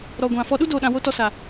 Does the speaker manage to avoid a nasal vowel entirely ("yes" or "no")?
no